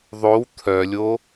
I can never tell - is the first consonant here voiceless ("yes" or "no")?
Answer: no